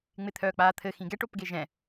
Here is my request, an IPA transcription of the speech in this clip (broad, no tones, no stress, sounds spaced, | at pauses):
ŋ͡m ɪ t̪ʰ œː k͡p aː t̪ʰ ɘ x ĩ ɡ ɛ ʈ o p ɡ e ʒ ɛ̃